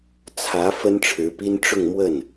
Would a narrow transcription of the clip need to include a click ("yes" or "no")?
no